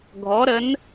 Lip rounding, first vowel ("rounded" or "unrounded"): rounded